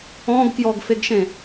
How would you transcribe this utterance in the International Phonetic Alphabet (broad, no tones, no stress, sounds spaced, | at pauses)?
ɔ̃ ɡ k j ɔ ɡ f e ɡ ʃ ẽ